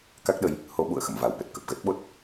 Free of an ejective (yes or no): yes